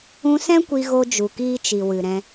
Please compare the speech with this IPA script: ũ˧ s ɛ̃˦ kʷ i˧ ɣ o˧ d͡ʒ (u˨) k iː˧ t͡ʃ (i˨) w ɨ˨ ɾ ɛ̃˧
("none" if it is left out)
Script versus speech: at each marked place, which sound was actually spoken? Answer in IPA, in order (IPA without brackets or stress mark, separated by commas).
u˨, i˨